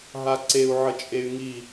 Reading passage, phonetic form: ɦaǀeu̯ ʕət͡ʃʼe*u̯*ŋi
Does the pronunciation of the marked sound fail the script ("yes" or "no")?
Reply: yes